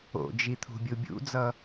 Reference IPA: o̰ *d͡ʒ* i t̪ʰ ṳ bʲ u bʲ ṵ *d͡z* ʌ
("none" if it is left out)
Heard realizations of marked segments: d͡ʒ, d͡z

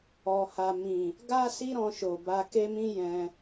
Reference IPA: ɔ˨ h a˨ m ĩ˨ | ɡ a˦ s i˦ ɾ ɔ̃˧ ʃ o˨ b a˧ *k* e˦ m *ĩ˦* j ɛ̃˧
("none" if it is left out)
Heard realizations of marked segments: k, ĩ˦

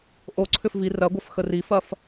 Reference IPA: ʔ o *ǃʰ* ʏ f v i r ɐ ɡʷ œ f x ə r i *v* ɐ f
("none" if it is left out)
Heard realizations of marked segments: ǀʰ, f

